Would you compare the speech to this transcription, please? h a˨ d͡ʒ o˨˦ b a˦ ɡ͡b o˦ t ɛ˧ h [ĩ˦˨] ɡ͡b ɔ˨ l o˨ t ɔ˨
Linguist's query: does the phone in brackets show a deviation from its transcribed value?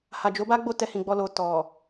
yes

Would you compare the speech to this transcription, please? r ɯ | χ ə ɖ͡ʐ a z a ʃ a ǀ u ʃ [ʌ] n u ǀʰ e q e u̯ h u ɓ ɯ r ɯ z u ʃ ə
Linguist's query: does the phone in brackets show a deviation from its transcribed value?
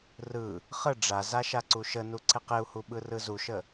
yes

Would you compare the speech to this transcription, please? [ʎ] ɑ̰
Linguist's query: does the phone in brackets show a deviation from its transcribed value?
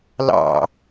yes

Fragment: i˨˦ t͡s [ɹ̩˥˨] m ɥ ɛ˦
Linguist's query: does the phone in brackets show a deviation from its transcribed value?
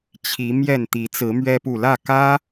yes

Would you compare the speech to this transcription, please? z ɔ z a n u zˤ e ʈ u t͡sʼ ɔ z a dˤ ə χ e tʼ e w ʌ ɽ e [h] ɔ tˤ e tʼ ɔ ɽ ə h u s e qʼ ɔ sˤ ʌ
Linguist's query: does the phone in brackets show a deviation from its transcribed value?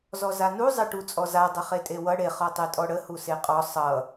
yes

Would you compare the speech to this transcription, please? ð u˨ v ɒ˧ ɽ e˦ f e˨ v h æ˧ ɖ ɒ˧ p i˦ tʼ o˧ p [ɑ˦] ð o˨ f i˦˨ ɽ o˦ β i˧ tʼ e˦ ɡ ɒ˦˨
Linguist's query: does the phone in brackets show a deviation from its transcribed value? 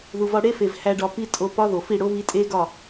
yes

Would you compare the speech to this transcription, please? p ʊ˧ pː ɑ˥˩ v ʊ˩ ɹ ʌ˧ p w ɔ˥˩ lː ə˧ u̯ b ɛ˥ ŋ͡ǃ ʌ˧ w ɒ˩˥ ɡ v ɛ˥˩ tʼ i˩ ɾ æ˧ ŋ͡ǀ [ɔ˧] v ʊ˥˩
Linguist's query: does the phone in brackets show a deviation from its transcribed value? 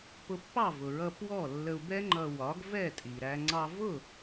yes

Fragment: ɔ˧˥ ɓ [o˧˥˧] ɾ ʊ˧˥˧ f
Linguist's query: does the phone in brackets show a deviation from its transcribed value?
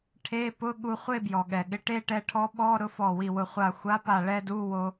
yes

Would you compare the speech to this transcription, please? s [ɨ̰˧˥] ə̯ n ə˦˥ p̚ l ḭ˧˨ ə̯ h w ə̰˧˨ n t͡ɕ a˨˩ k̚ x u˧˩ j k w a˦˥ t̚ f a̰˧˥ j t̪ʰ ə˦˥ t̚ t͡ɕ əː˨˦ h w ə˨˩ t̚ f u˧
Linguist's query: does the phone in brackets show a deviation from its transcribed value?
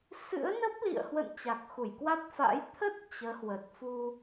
no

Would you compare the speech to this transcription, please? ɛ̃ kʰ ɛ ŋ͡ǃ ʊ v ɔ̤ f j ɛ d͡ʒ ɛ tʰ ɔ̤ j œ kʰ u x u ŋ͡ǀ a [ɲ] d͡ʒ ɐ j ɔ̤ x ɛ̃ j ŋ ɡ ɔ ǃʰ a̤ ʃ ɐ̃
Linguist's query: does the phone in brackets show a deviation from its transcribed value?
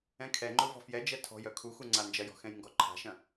yes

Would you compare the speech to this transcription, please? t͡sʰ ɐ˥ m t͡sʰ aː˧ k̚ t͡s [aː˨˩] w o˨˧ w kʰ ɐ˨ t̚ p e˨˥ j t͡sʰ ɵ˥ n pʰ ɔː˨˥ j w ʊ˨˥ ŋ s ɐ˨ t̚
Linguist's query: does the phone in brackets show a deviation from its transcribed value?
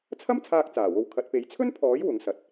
no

